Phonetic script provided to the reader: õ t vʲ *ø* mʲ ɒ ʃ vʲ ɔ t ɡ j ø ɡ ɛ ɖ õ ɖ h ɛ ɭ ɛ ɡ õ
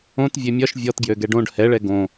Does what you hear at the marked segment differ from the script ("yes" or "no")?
no